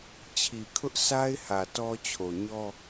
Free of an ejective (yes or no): yes